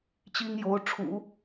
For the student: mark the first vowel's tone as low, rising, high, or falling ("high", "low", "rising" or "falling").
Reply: high